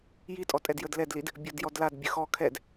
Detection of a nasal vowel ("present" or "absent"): absent